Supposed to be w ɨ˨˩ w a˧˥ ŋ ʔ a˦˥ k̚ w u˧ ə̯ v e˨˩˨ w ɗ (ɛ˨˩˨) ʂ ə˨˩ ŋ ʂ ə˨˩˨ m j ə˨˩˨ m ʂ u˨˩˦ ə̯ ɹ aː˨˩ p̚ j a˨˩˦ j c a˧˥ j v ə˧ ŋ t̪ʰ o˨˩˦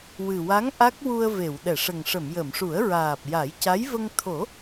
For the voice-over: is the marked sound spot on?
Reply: yes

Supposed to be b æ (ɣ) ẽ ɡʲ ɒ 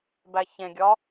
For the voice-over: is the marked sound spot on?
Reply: no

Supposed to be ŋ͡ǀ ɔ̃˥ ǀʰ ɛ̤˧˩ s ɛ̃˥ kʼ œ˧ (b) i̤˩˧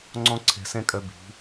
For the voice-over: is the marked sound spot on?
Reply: yes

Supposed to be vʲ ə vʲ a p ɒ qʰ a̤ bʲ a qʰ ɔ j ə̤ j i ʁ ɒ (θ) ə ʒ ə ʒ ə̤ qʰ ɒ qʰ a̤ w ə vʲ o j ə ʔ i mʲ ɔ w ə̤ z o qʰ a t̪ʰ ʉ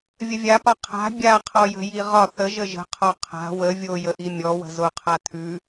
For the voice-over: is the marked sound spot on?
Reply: yes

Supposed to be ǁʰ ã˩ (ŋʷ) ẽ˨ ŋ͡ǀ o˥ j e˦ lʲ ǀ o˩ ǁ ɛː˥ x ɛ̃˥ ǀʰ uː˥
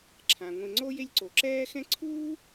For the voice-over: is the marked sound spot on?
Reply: yes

